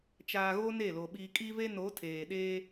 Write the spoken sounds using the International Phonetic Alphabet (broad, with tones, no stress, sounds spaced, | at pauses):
t͡ʃ aː˨ ɣ o˦ n e˦˨ l o˨ ɓ iː˨ kʼ i˦ v e˦ n o˨˦ tʰ eː˨ ɗ eː˦